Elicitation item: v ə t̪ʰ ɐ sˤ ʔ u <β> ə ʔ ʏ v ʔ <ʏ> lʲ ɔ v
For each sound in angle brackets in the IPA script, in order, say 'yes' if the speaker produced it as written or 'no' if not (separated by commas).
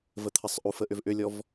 no, yes